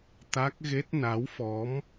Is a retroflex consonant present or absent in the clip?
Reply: absent